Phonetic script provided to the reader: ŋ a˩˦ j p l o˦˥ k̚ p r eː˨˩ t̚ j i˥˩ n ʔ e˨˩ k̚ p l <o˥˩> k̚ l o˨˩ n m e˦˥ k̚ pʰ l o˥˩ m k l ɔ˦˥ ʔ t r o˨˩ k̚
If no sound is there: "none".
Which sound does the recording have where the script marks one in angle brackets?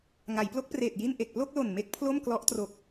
o˥˩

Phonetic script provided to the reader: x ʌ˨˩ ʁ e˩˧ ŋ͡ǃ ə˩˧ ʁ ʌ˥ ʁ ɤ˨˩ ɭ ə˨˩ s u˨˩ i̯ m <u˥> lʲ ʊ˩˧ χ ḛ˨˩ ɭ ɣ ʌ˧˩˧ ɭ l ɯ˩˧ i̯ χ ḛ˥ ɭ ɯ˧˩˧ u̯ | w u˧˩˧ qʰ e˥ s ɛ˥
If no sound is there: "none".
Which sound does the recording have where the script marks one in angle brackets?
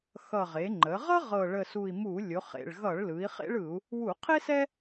u˧˩˧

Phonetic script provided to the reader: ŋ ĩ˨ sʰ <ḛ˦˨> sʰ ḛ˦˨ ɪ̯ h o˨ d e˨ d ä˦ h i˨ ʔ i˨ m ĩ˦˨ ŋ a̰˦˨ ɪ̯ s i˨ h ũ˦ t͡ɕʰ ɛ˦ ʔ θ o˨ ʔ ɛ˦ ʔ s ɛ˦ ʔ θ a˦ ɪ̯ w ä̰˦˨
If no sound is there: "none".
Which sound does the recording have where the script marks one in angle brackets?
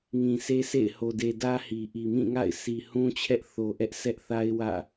e˦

